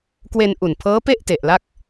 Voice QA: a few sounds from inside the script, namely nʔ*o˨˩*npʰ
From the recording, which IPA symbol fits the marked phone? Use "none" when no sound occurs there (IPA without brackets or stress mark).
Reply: u˨˩